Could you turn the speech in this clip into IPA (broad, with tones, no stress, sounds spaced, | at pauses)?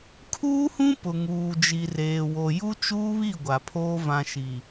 kʰ uː˦ h ũ˦ p ʊ˨ ŋ uː˨ d͡ʒ i˨ r eː˨ w o˨ j u˦ t͡ʃ uː˦ β i˦˨ ɡʷ a˨ pʰ oː˦ v ã˨ ʃ i˨